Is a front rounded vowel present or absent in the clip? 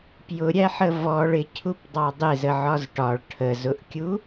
absent